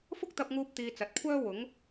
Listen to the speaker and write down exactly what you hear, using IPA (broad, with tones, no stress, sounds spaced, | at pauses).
f ʊ˥ k̚ t̪ ɐ˧ p̚ ŋ uː˧ p̚ t̪ iː˧ t͡s ɐ˨ t̚ kʷʰ œː˥ w ʊ˨˥ ŋ